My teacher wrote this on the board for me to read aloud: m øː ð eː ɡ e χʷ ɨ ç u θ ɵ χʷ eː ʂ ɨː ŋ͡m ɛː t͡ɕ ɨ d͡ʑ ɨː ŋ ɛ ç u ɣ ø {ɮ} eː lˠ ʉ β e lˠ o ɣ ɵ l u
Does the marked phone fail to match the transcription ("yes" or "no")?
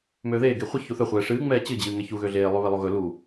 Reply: no